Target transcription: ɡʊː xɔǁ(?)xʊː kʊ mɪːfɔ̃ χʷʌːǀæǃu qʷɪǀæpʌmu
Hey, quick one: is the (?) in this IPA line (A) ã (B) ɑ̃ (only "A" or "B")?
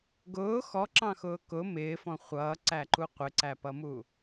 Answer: B